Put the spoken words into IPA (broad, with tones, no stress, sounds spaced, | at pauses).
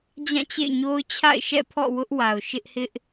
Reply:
d͡ʑ ã˦˨ t͡ɕ ḛ˦˨ ɪ̯ ɲ o˦ ʊ̯ t͡ɕʰ a̰˦˨ ɪ̯ ʃ ɛ̰˦˨ pʰ ɔ̰˦˨ w ʊ˦ ʔ w a˨ ʊ̯ ʃ ɪ˦ ʔ h ɪ˦ ʔ